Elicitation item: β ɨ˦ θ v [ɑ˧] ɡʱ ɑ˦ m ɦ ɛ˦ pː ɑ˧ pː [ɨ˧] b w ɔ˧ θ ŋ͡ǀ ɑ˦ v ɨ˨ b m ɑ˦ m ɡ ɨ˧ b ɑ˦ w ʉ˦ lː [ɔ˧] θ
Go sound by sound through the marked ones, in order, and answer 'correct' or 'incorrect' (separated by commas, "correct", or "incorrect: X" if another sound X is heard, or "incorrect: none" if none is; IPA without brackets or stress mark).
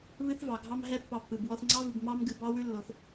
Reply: incorrect: ɑ˨, incorrect: ɨ˨, incorrect: o˧